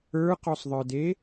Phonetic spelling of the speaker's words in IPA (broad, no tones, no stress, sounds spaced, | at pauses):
ə˞ q ɔ sˤ ðˤ ə˞ d e